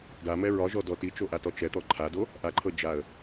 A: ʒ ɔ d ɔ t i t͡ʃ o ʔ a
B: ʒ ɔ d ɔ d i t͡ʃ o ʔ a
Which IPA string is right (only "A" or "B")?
A